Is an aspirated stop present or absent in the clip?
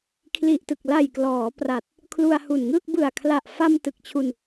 present